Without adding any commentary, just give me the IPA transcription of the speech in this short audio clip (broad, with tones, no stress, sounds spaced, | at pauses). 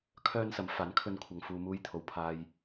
kʰ œː˥ n s ɐ˨˥ m f aː˨˥ n kʰ ɵ˧ n kʷʰ ɐ˨ ŋ f uː˨ m uː˧ j t̪ʰ o˧ w pʰ aː˥ j